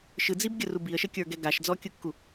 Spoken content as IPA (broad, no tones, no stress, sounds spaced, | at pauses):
ʃ ɯ d͡z i b ɡʲ ə r u b i ə̯ ʃ ə kʲ ə˞ ɡ ɛ ɡ a ʃ d͡z ɔ kʲ ɯ kː u